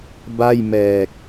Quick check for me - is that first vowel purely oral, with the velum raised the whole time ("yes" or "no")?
yes